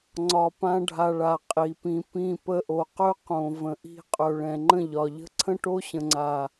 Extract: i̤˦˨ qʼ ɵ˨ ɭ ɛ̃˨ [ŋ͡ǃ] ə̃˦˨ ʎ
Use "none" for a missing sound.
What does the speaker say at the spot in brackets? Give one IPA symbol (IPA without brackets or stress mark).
ŋ͡ǃ